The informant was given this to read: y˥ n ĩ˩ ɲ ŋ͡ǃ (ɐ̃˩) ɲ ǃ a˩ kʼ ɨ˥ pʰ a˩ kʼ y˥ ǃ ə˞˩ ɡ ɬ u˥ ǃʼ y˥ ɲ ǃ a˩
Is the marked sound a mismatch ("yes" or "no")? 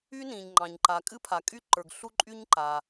yes